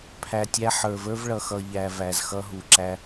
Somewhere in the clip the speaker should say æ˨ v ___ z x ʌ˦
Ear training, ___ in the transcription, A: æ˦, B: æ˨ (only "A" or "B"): B